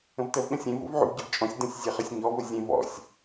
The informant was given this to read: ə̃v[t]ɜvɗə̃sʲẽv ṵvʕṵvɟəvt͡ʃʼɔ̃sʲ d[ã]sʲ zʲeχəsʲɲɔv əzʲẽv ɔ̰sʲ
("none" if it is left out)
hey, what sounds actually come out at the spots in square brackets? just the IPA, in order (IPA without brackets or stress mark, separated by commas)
t, ə̃